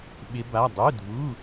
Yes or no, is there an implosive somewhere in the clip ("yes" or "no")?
yes